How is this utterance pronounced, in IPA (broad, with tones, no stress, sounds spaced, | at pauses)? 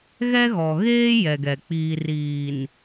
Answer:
ɣ ɛ˦ ɣ ɔ˨ ɣ eː˦ j ɛ˨ ɡ ɛ˨ k͡p iː˨ r iː˨ n